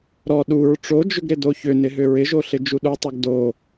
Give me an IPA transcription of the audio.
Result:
ɾ ɔ ɗ u ɹ ʈ͡ʂ o d͡ʒ ʏ ɡ ɾ ɪ d o ç ʏ n ɪ ɦ ʏ ɹ ɪ ʒ o ɬ ɪ d͡ʒ u ɗ u tˤ o ɡ d o

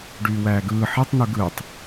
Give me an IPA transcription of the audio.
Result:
ɖ yː w æː ɡ ɯː ħ e tˤ n̪ u ɡ ɯː tˤ

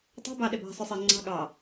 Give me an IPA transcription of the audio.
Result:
tˤ e̤ b ɑ ɗ e b æ̤ sˤ ʉ sˤ e ŋ͡ǀ ɑ̤ ɠ ɑ

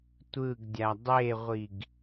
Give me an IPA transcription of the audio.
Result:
tʷ ɯ ɡ dʲ a dˤ e ʁʷ i ɡ

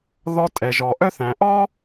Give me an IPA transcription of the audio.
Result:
ð ɔ˧ tʼ ɛ˩ ʒ ɔ˩ ʔ œ˥ θ æ̃˩ ʔ ɔ˥

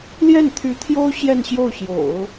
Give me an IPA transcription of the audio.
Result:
l j ɛ˥˩ n t̪ʰ y˧˥ t̪ʰ j o˥ ʊ̯ ɕ j ɛ˥˧ n ɕ j o˥˩ ʊ̯ ɕ j o̰˨˩˦ ʊ̯

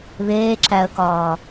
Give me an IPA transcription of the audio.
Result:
β eː ǁ æ ə̯ k ɒː

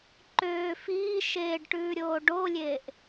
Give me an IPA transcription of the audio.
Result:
ǃ øː f iː ʃ eː ɖ ʈ ʉː ɾʲ oː ɖ o lʲ eː ʔ

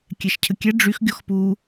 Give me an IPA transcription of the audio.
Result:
kʲ ɛ ʃ cʰ ə kʲ ɛ ɖ͡ʐ y x ɡʲ ɔ x p u

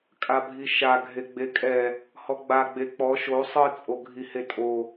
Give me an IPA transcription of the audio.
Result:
kʼ a bʱ i ʃ a ɡʱ e ɡ͡b e kʼ ɛ | h ɔ ɡ͡b a ɡ͡b e k͡p ɔ ʃ o sˤ ɯ t͡sʼ o ɡʱ i h e tʼ o

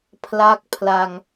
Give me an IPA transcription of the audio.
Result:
pʰ l a˦˥ k̚ pʰ l a˧ ŋ

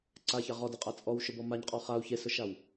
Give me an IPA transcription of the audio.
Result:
ǀ a ç a ʁ ɔ d ɨ qʼ a t͡sʼ ɔ w ʃ ʊ b ɔ m a ɲ qʼ ɔ χ a u̯ ç e s ʊ ʃ a w

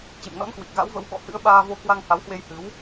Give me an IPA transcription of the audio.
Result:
t͡ɕ ḛ˧˨ m n ɔ̰˧˥ n k w i˨˩ k̚ ɣ a̰˧˥ w v ə̰˧˥ w ɓ ɔ̰˧˨ h ɨ̰˧˥ ə̯ ɓ aː˧ v o˧ k w a˧ ŋ h a˨˦ w h w e˧ j h ɨ˨˦ w

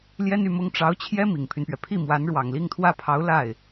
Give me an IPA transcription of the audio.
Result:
l j ɛ˥ n y˥˩ m ʊ˥ ŋ ʈ͡ʂ ɑ˧˥ ʊ̯ t͡ɕʰ j ɛ˥ m i˨˩ ŋ pʰ y˦ n p ɥ ɛ˩ pʰ i˥˩ m w a˧˥ n ɻ w ɑ˨˩ ŋ l i˥˩ ŋ t̪ʰ w ä˥ pʰ ɑ˧˥ ʊ̯ l a˥˩ ɪ̯

